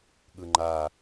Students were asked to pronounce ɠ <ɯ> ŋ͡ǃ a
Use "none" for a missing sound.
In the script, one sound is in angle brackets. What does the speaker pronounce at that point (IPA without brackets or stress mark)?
ɯ